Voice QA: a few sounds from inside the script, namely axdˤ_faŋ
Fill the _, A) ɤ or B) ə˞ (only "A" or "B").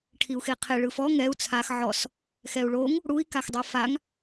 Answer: A